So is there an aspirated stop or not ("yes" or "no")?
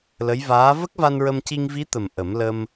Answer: no